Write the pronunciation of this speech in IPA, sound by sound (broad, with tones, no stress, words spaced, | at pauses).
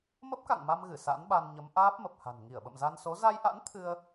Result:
mə˦˥p̚ka̰˧˨ŋma˧mɣɨ˧˩ sa̰˧˥nɓa˧nɲə˨˦m ʔaː˦˥p̚mə˨˩p̚ha̤˨˩n ŋi˧˩ə̯ɓə̰˧˨mza˧nso˨˦ za˧jʔa̰˧˥n t̪ʰɨ˧ə̯